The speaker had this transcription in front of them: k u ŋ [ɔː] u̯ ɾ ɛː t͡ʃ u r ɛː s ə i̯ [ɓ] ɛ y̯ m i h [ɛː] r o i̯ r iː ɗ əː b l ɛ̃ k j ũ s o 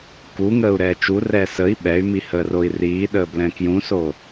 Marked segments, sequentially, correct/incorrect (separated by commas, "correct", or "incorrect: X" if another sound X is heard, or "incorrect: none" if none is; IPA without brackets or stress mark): incorrect: əː, correct, incorrect: əː